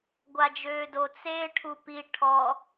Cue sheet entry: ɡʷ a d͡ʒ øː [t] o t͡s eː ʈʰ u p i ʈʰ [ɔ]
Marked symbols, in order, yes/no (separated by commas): no, yes